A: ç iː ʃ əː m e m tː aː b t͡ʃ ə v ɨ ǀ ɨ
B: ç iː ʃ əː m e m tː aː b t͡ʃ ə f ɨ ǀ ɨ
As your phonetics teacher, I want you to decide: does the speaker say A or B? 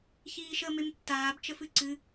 B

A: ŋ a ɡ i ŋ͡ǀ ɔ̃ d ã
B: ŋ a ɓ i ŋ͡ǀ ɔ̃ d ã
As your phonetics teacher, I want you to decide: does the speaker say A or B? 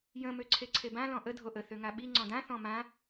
B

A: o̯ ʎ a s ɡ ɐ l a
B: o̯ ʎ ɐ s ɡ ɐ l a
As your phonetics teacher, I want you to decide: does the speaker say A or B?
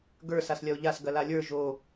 A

